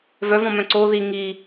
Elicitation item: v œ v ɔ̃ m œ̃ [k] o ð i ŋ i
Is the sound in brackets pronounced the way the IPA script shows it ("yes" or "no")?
no